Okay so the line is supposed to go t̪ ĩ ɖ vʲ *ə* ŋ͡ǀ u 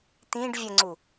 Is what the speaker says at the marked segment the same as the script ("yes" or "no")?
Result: yes